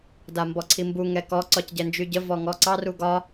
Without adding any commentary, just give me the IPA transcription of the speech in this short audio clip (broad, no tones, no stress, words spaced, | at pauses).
dambɔǀʰimbu ŋɛkɔ ǀɒcɟɛnd͡ʒyɟə vɔŋɔǀɑr uɡɒ